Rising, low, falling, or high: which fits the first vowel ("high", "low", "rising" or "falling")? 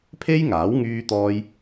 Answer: high